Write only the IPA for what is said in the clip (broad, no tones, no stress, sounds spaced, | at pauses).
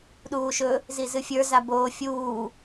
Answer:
ɗ uː ʃ ɵ | z i z ɨ fʲ ə˞ z a b oː fʲ uː